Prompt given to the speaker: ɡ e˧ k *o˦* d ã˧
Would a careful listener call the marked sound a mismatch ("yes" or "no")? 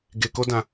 no